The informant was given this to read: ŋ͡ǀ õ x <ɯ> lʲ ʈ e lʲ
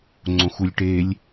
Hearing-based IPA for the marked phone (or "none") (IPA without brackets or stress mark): u